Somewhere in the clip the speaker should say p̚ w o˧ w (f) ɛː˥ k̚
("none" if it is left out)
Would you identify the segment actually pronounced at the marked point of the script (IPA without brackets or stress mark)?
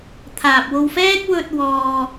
f